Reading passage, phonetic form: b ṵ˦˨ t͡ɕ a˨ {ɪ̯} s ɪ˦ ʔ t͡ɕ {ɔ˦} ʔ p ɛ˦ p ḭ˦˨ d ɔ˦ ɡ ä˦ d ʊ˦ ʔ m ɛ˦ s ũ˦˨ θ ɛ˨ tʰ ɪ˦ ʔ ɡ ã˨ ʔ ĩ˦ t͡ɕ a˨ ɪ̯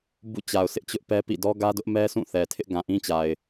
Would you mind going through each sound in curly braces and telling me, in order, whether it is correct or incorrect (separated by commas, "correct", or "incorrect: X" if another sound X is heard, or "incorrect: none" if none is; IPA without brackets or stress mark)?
incorrect: ʊ̯, incorrect: ʊ˦